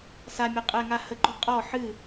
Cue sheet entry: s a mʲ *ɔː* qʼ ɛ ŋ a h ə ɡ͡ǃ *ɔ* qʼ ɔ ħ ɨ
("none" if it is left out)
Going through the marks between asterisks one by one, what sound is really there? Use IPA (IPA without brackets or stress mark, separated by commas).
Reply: ɔ, ɔ